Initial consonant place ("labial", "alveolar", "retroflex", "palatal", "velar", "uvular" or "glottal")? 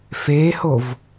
labial